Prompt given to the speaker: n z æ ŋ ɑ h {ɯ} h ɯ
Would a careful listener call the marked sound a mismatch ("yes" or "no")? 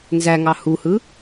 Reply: yes